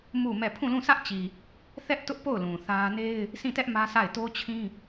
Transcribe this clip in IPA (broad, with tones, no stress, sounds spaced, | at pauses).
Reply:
m u˦˨ m ɛ˦˨ pʰ ũ˦˨ l ũ˦˨ s ä˦ ʔ t͡ɕ i˨ | θ ɛ˦ ʔ t ʊ˦ ʔ p o˦˨ ʊ̯ l ũ˨ θ ä˦ n e˦ ɪ̯ | s ĩ˦˨ t ɛ˦ ʔ m ä˦ s a˦˨ ɪ̯ t o˦ t͡ɕʰ ĩ˦